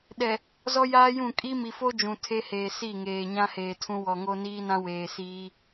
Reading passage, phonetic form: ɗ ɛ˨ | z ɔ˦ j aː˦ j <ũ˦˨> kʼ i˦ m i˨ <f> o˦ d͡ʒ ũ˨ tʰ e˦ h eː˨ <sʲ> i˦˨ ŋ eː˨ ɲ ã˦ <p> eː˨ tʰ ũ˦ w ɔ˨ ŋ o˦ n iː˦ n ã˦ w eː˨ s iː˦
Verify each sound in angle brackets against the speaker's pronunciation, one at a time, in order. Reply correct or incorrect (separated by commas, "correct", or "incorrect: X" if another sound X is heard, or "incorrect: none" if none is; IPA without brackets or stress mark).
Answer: correct, correct, incorrect: s, incorrect: h